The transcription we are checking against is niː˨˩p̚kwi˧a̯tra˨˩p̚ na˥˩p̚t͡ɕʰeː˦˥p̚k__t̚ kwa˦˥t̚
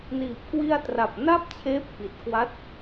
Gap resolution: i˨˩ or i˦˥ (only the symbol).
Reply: i˨˩